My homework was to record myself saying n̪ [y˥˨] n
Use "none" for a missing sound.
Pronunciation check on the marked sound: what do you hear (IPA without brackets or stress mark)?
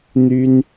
y˦